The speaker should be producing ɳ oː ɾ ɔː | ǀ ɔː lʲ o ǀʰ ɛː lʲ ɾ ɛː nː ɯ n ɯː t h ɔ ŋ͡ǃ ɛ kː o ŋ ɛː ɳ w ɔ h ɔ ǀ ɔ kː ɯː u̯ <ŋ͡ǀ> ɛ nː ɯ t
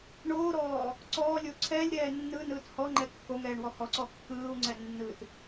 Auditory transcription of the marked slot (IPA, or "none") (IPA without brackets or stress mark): ŋ͡ǀ